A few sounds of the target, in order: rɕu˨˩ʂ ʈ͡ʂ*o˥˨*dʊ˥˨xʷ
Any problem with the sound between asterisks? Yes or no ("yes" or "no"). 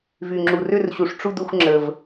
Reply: yes